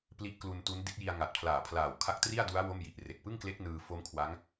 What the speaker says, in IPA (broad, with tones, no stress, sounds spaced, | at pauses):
p l i˦˥ ʔ k l u˧ n t u˦˥ n d i˦˥ t̚ j i˧ a̯ ŋ a˨˩ t̚ pʰ l aː˨˩ pʰ l aː˨˩ w kʰ a˦˥ k̚ t r i˥˩ a̯ d u˦˥ a̯ w o˥˩ m j i˨˩ ʔ r e˨˩ k̚ p ɯ˥˩ ŋ k l e˦˥ k̚ n ɯː˧ f o˦˥ m kʰ w a˦˥ ŋ